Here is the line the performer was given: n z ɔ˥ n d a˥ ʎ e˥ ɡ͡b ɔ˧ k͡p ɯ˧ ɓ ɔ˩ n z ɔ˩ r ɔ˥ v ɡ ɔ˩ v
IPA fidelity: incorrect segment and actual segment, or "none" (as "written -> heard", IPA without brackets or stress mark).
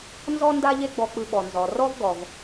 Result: none